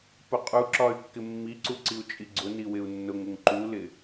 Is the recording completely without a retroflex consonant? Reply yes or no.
yes